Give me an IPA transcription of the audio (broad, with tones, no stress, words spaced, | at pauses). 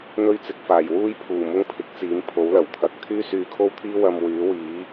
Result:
n̪ɵ˥ɥt͡sɪ˨˥k̚faː˨˩j wuː˥jpʰuː˨˩ mʊ˥ŋpʰɪ˨˥k̚t͡siː˨˥m pʰo˨˥wlɐ˨˩wt̪ʰɐ˨˥k̚ t̪ʰyː˥syː˧kʰo˥wt̪ʰiː˥ wɐ˧m wyː˨˥wiː˨˥